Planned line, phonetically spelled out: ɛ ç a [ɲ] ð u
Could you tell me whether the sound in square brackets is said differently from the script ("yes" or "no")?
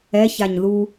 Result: no